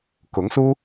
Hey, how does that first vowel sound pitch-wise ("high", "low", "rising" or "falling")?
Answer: rising